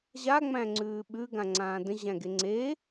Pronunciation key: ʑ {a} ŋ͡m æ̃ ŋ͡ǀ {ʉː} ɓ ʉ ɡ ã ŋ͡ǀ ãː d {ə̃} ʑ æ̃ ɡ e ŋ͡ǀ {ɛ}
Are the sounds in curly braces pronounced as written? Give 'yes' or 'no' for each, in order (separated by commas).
yes, yes, yes, no